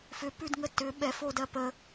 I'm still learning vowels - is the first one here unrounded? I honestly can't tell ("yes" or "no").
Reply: no